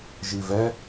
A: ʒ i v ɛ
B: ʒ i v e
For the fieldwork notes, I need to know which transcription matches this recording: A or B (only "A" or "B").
A